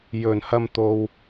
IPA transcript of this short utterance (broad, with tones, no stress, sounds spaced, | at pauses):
j ɵ˨˩ n h ɐ˧ m t̪ o˨ w